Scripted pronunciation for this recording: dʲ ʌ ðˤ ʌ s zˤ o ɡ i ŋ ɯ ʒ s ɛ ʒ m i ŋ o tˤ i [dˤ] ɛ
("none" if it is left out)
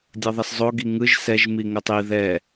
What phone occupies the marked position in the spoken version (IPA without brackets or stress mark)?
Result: ð